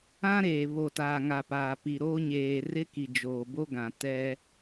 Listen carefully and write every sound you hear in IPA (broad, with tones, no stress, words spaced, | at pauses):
ã˦ɾeː˨ βo˨taː˨ŋa˨ paː˨pi˨ɾoː˦ ɲeː˨rɪ˦ki˨ d͡ʒoː˨bo˦ɡã˨ tɛ˦